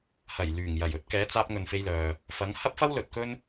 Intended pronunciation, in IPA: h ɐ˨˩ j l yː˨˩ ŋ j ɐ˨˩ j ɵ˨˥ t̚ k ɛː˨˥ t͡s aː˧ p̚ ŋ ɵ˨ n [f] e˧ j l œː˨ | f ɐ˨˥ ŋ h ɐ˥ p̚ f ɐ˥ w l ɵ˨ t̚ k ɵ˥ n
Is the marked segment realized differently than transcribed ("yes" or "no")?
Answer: no